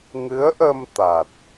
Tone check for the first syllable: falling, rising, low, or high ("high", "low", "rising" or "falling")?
rising